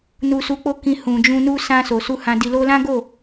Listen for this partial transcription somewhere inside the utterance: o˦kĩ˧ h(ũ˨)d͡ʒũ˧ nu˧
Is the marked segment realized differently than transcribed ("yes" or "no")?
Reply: no